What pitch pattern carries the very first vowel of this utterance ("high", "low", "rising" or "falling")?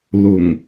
low